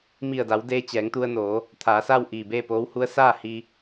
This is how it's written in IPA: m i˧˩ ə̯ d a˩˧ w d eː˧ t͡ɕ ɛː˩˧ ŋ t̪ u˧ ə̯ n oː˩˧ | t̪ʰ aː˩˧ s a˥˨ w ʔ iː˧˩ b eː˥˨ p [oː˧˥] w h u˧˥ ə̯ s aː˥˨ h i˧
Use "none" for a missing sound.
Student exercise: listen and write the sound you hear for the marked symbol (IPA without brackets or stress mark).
oː˧˥